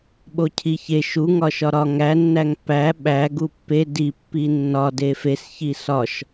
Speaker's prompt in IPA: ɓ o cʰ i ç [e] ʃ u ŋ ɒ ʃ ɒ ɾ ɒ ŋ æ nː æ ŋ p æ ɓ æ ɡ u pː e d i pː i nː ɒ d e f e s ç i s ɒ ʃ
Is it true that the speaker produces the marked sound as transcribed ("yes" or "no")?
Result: yes